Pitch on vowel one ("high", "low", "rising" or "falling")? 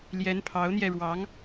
rising